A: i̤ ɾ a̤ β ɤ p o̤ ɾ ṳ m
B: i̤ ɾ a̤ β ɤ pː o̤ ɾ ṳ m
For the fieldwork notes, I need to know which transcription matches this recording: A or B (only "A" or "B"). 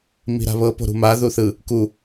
A